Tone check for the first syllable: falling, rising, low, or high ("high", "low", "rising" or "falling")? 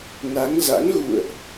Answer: rising